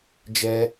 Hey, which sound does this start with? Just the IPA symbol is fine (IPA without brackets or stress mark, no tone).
d͡ʒ